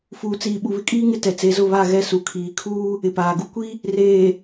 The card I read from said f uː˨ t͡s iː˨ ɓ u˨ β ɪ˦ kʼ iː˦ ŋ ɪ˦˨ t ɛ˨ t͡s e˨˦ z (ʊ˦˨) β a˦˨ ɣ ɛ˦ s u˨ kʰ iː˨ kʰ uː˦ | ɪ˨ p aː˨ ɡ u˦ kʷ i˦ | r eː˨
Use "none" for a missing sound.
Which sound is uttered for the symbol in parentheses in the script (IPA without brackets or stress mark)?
ʊ˦˨